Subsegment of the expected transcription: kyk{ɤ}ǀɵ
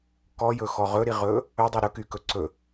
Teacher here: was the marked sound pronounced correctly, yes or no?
no